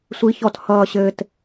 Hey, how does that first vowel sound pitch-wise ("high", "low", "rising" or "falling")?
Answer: rising